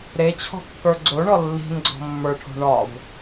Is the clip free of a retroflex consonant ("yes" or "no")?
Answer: no